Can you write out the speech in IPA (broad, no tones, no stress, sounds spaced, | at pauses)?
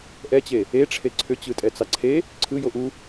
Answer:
ʔ ɛ t͡ɕ e | e ʈ͡ʂʰ e ǀʰ ʏ t͡ɕ ɯ tʼ ɛ t͡s ɑ ǀʰ e | ǀʰ ɯ j o ʔ u